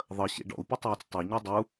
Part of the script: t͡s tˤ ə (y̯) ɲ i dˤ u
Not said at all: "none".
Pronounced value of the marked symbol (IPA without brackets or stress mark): y̯